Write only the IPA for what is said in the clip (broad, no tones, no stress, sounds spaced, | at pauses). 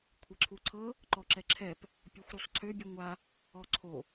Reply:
kʷʰ ɛ ǁʰ u ǀʰ ɤ | ǃ ɔ ǁ ɛ ǁʰ ɛ p | pʲ ɔ xʷ ɾ u sˤ ǀʰ ø bʲ u ŋʷ a | ɔ ǀʰ o